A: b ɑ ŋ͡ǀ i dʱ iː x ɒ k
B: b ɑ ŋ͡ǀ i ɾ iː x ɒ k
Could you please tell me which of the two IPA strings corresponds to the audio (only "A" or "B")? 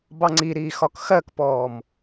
B